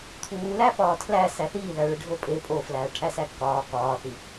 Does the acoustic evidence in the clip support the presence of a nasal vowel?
no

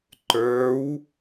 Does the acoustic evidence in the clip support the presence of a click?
yes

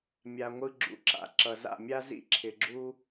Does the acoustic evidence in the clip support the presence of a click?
yes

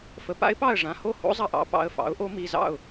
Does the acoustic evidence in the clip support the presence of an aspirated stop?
no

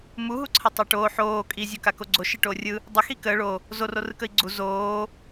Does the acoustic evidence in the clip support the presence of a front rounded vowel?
no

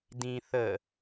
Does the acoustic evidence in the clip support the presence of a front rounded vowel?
no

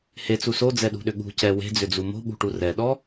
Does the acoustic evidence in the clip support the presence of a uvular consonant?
no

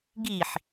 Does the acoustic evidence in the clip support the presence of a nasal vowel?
no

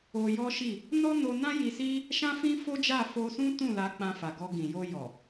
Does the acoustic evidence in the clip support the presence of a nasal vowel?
yes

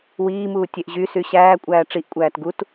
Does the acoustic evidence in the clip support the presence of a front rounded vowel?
yes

